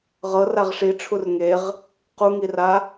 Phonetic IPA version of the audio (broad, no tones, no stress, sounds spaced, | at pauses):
ʁ ɤ r a ʁ ʂ i ʈ͡ʂʰ u r ŋ e ʁ | q u ŋ i r a